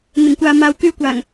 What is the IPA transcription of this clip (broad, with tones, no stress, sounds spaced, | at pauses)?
n̪ ɪ˨˩ ŋ kʷ aː˨ m aː˨ w k yː˧ kʷ aː˨˩ ŋ